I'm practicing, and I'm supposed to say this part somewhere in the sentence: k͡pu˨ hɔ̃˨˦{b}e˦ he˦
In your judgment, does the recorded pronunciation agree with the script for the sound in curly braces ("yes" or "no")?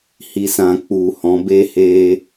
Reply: yes